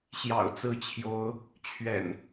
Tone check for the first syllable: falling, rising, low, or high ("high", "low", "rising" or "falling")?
low